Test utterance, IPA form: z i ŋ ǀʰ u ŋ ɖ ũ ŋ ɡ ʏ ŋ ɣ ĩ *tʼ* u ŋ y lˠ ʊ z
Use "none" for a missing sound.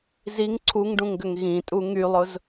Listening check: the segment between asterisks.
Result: tʼ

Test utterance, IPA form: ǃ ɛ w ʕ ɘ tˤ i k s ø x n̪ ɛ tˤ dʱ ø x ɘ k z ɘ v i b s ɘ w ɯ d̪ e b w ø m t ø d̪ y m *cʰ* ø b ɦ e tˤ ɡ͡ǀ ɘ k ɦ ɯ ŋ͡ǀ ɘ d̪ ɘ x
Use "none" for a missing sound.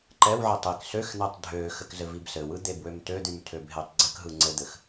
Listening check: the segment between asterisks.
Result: tʰ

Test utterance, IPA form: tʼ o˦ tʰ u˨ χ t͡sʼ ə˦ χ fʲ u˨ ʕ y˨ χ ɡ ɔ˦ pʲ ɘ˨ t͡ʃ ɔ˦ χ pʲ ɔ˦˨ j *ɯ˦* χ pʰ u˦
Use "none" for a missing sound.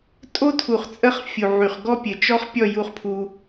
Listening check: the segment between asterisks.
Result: u˦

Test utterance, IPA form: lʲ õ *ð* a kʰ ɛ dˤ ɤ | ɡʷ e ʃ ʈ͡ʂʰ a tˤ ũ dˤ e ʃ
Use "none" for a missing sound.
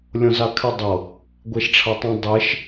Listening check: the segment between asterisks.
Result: z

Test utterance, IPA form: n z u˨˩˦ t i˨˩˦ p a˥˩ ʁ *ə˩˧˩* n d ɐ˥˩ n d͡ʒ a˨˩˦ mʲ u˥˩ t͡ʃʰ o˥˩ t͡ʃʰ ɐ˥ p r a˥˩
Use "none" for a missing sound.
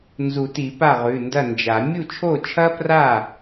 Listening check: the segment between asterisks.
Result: ʉ˩˧˩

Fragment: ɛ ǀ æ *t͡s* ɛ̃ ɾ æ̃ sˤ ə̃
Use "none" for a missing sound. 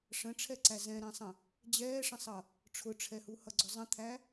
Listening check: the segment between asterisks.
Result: z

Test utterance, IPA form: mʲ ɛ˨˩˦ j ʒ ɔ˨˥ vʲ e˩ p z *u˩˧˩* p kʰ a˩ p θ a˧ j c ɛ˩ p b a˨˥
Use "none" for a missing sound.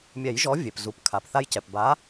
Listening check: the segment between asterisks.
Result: u˩˧˩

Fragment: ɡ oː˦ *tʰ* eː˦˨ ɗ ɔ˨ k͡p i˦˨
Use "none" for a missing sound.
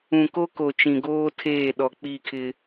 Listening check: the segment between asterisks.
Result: tʰ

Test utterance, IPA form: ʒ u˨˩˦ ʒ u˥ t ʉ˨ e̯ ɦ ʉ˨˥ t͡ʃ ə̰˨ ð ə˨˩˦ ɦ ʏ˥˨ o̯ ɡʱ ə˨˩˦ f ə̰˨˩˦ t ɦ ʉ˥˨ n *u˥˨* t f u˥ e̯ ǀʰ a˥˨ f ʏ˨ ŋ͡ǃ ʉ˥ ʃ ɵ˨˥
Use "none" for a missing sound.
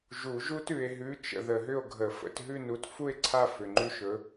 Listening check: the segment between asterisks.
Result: u˨˥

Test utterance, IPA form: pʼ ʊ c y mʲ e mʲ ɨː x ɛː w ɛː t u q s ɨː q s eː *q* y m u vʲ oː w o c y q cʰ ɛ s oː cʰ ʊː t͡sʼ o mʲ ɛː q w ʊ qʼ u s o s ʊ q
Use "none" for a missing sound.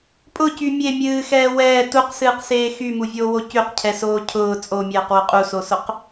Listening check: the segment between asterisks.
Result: x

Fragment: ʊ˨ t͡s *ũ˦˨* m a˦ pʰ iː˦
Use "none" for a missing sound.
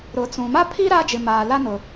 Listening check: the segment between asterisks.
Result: ũ˨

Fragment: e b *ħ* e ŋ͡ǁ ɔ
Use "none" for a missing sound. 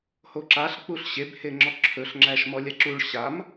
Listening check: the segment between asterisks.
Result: h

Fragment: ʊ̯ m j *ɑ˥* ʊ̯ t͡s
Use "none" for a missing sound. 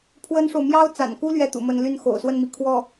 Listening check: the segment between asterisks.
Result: ɑ˥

